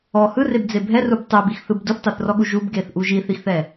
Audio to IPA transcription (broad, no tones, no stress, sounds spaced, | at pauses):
ɔ h ɯ r e b d͡z e bʱ ɛ r u b tˤ ɛ b i x θ ɯ b d u θ tˤ o θ r ɔ ɠ u ʒ u b ɡ e θ ʔ u ʒ i θ i x θ ɛ